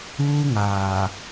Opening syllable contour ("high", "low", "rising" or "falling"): high